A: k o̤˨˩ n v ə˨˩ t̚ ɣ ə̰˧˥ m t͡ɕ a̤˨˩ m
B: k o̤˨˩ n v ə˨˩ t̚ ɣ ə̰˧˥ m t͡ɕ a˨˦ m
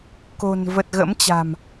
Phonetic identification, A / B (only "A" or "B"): A